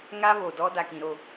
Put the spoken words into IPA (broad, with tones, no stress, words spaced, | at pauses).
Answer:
ŋa˦βo˨dɔ˦ da˨kĩ˨ɾo˦˨